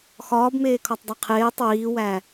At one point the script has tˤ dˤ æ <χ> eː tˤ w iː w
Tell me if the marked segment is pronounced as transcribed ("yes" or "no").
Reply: no